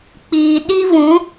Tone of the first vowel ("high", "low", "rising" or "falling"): low